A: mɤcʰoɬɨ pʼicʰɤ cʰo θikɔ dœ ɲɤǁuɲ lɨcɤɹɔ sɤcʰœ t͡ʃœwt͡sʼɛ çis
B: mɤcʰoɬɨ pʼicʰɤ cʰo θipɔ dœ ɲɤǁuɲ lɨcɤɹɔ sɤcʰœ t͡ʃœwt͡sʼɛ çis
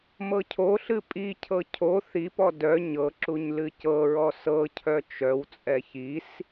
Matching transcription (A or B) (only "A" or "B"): B